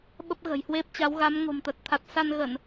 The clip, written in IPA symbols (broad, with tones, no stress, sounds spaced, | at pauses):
ɓ ə˦˥ p̚ ɣ ə̤˨˩ j h w e˦˥ p̚ t͡ɕ a˨˦ w ɣ a˨˦ m ŋ o̤˨˩ m t̪ ə˨˩ t̚ t̪ʰ a˨˩ t̚ s a˧ n ɣ ə˧˩˨ n